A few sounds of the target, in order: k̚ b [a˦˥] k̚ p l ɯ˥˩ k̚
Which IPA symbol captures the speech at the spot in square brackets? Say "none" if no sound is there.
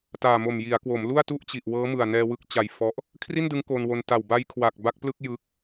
a˦˥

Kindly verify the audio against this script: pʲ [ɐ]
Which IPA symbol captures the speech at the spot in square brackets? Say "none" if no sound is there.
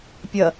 ɐ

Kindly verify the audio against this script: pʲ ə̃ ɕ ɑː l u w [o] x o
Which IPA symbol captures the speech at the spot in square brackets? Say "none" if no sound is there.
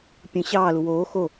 oː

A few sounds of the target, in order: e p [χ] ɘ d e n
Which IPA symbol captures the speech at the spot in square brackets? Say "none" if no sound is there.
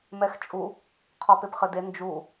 χ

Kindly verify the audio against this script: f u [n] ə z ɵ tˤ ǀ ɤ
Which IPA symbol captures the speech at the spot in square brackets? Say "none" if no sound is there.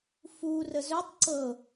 r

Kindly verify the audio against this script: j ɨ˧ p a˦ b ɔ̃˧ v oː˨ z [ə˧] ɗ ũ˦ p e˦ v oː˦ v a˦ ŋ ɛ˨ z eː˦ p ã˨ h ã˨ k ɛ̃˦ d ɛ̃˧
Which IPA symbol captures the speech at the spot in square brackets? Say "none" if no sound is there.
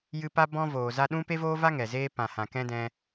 a˧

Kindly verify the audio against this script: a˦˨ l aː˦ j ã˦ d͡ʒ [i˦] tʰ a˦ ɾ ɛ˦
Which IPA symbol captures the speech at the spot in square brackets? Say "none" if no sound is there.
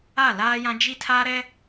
i˦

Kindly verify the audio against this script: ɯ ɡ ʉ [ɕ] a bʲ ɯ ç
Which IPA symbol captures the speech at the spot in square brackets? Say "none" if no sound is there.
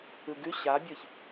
ɕ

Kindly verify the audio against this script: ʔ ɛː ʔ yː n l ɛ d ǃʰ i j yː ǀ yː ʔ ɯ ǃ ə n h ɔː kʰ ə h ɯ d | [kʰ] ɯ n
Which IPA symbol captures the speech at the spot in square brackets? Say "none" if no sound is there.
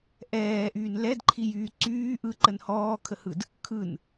kʰ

